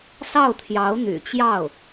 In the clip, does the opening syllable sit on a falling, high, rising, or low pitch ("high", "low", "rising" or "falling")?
falling